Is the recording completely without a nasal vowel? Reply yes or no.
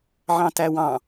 no